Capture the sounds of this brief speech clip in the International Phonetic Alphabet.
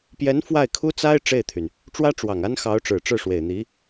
p j ɛ˧˥ n f w a˥˩ ɪ̯ kʰ u˥ t͡s a˥ ɪ̯ ʈ͡ʂ e˥˩ ɪ̯ t̪ʰ y˩ n | ʈ͡ʂ w ä˥ ʈ͡ʂ w ɑ˨˩ ŋ a˥ n x ɑ˧˥ ʊ̯ ʈ͡ʂ ɻ̩˨˩ ʈ͡ʂ ɻ̩˥˩ ʂ w e˨˩ ɪ̯ n̪ i˧˥

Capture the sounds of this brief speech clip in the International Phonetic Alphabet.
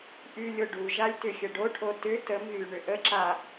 ʔ y lʲ o ɖ u ʒ a lʲ t ʏ xʲ ə ɖ o ʈʰ o t ʏ t ə m ɣ y ɳ ʏ ʔ ə ǁ a

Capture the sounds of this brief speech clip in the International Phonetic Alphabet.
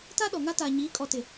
t a˦ ɗ ɔ˨ ŋ a˦ t aː˨ ɲ iː˨˦ kʼ ɔ˨ t ɪ˨

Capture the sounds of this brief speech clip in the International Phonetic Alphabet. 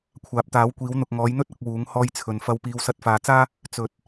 kʷʰ aː˨ p̚ t̪ aː˨˥ w kʷ iː˨˥ w n̪ ʊ˨ k̚ ŋ ɔː˨˥ j n̪ ɵ˥ t̚ ɐ˨˥ k̚ w uː˨˥ ŋ h ɔː˧ j t͡sʰ ɵ˨˩ n f ɐ˧ w p iː˨˧ w s ɐ˧ t̚ f aː˨ t͡s aː˥ | t͡s ɵ˨ t̚

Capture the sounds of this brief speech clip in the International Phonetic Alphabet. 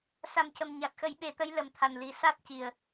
s a˨˩ m c ə˨˩ m ɲ a˨˩ t̚ x ə˨˩˦ j ɓ e˨˩˦ t̪ ə˧˥ j l ə˨˩˦ m t̪ʰ a˨˩ n l i˨˩ s a˦˥ t̚ c i˨˩ ə̯

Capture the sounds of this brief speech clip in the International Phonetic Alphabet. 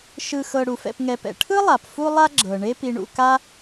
ʃ ɯ˨ x ɤ˨ ɽ u˩ f ɛ̰˨ p ŋ ɛ˨ p ɛ̰˩ ʈʰ ɯ˥ lˠ a˩ p f u˥ lˠ a˥ ɡ͡ǁ ɤ˩ ɳ e˦ p i˨ ɳ ṵ˨ k a˦

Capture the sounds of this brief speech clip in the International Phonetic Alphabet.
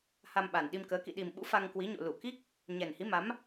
h a˧ m ɓ a˨˩ n ɗ i˧ m k əː˨˦ k ḭ˧˨ ɗ i˨˩ m ɓ ṵ˧˥ f a˧ ŋ k w i˨˦ ɲ o̰˧˨ l u˧˩ k i˦˥ k̚ | ɲ ɛ˨˩ n h i˨˦ m a˨˦ m

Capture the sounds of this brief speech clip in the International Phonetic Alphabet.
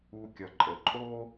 u˧ kʲ ʌ˨ ǃʼ ə˨ ǃʼ o˦

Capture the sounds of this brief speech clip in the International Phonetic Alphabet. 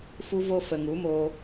f u˧ v o˧ f ə˨ ŋ u˨˦ m oː˧

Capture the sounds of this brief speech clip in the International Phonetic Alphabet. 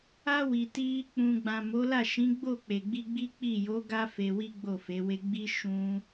a˧ w i˨ t i˧ | k͡p ũ˨ ɡ͡b ã˨ m o˨˦ l a˦˨ ʃ ĩ˨˦ ɡ͡b o˦˨ k͡p e˨ ɡ͡b i˧ ɡ͡b i˦ k͡p i˦˨ j o˨˦ ɡ a˧ f e˧ w i˦ ɡ͡b o˦˨ f e˨˦ w e˧ ɡ͡b i˦ ʃ ũ˦

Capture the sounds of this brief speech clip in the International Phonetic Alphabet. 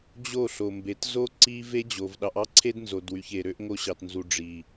d͡ʑ o˦˨ ɬ o˨ m b e˨ t z o˦ ǀ i˦ v e˦ d͡ʑ o˨ v ɗ ɑ˧ ʔ ɑ˦ ǀʰ e˦ d n z o˨ d w y˨ ç e˨ ɾ ø˧ ʔ ŋ o˧ ɕ ɑ˨ t n z u˨ ɖ͡ʐ i˨

